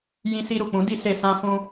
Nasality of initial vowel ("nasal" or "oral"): nasal